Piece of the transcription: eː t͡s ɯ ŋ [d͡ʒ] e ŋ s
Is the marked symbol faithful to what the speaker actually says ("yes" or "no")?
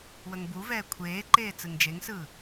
yes